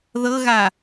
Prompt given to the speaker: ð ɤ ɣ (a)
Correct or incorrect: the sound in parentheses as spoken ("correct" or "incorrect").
correct